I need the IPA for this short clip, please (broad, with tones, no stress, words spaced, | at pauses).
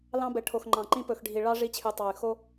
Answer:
lɑ̃˦bɛ˨ʈʰo˨x ŋ͡ǃɑ̃˨ǃĩ˦ pɵ˨xɖʱi˨ɭɑ˦ ʐi˦t͡ɕʰy˨ tˤɑ˨y̯xo˦